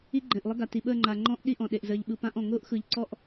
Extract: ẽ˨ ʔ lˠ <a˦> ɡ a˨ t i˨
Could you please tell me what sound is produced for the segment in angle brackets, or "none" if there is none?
ə˦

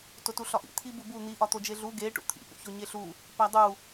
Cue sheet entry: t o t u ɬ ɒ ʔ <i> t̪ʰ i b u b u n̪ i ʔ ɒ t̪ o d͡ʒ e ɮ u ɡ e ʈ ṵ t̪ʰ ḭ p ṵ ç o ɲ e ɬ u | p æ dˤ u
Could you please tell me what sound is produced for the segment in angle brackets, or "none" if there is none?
ḭ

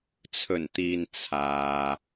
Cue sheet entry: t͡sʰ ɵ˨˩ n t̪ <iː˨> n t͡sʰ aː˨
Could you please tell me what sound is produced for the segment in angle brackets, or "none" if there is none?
iː˨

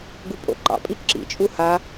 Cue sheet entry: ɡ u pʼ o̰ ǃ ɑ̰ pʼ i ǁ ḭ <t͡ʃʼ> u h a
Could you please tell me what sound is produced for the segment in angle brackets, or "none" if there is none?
t͡ʃʼ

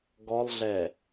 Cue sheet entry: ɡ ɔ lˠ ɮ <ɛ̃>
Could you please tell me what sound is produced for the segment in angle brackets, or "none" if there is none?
ɛ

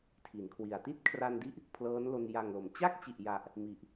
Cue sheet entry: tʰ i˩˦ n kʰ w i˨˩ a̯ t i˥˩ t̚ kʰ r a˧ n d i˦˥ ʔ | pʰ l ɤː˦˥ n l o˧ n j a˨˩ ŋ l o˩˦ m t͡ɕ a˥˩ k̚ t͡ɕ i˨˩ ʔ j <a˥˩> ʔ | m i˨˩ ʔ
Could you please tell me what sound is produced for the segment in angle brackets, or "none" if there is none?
a˨˩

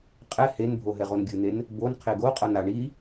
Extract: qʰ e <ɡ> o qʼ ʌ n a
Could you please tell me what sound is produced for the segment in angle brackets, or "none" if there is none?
ɡ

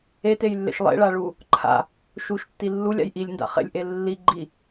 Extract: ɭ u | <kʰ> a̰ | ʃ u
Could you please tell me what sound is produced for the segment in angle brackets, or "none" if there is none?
ǃʰ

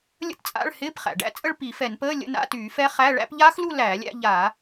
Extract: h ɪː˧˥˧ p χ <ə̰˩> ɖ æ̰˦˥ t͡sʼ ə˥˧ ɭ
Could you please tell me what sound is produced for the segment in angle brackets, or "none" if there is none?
æ̰˩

